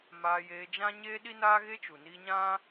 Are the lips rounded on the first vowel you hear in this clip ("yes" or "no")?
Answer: no